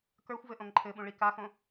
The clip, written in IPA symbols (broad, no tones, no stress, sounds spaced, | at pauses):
k ə˞ xʷ v ɘ ʔ õ ŋ ǃʰ ɘ ɓ ũ ɭ i k a x õ